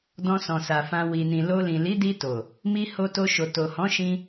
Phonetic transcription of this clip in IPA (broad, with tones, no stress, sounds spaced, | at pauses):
d ɔ̃˧ s ɔ̃˨ s a˨ f ã˧ w i˨ n ĩ˨ l o˧ l ĩ˨ l i˨˦ d i˧ t o˨ | m i˧ h o˧ t o˧ ʃ o˨ t o˨ h ɔ̃˨˦ ʃ ĩ˧